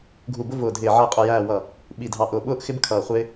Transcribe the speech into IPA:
ɡʱ u˧˩ b ʊ˦ v ʊː˧˩ dʱ ɪː˧˩ ʕ ʌ˧˩ e̯ qʼ ʊ˧˩ j æː˧˩ w ʌ˧˩ | ɓ i˧˩ dʱ ɑ˧˩ ʔ ʊː˧˩ ɓ ʊː˦ ʔ x ɪ˦ b kʰ ʌː˧˩ χʷ ɪː˦

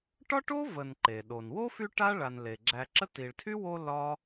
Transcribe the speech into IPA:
ʈ ɒ˥ ʈ o˥ v ə˨ n ǃ e˩ ɗ o˩ n w o˥ f y˦ ʈ a˥ ɭ a˨ n l e˩ ɡ͡ǁ æ˨ ǁ ə˥ t i˨ ɭ tʰ y˥ w o˦ l ɒ˥

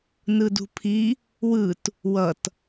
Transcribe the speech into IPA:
n ɯ d ṳ pʰ i | w ɯ t | w ʌ t

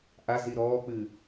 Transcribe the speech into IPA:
ʔ a z i ɾ ɔː k͡p ɨ

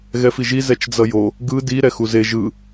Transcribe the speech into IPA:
ɣ ɛ f i ʒ i z ɛ t͡ʃ d͡z ʌ j o | ɡ ɯ d i ɾ ɛ x u z e ʒ ɯ

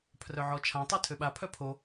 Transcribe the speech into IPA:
pʰ r œ ʕ ɔ t͡ʃʰ ã tˤ u tʰ ø ɓ a pʰ œ pʰ o

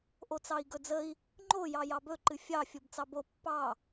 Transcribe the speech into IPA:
ʔ o t͡s ɑ i̯ ɡ ɵ d͡z ə i̯ | ŋ͡ǃ o j ɑ j ɑ b ɵ ǃ ɨ fʲ ɑ fʲ o b t͡s ɑ b o pː ɑ

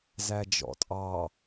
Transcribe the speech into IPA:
z æ d͡ʒ ɔ̰ tʼ ɑ

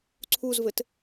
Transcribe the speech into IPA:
ǀʰ u z v ɘ t

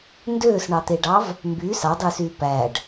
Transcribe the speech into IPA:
n d øː s ɳ ɑ t̪ e ɖ ɑ v | m b y s ɑ dˤ yː s yː p æ ɖ

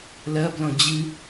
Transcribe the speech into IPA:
l ɐ b l ɔ̃ d͡ʑ ɨ

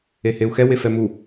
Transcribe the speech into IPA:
e h e u̯ x ɛ w e f ɛ m u

